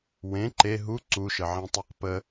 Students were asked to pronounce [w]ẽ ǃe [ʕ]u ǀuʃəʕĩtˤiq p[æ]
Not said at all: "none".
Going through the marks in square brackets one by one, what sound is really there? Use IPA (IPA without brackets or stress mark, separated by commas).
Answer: w, ɦ, ə